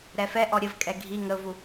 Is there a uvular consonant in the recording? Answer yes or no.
no